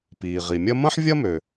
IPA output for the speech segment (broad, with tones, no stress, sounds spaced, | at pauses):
p iː˩ ʁ i˩ mʲ ɐ˥ m ɐ̃˥ ħ vʲ ɐ˥ m ø˩